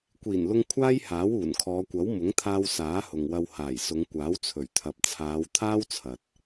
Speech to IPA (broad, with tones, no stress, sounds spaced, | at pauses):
kʷ iː˨˩ n l ʊ˧ ŋ kʷʰ aː˥ j h aː˨˥ w uː˨˩ n kʰ ɔː˨˧ kʷ ɐ˨˥ w m ʊ˨˥ ŋ t̪ʰ aː˧ w s aː˨˥ h ʊ˨ ŋ w ɐ˧ w h aː˨˩ j s ʊ˨˧ ŋ kʷ aː˨˥ w t͡sʰ ɵ˨˩ ɥ t̪ʰ ɐ˨ p̚ t͡sʰ aː˨˧ w t̪ʰ aː˥ w t͡sʰ ɐ˨ t̚